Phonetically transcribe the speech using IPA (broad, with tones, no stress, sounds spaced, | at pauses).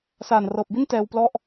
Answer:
s aː˨˩ n r ɤː˨˩ p̚ b i˥˩ n t ɛː˧ w p l ɔ˥˩ ʔ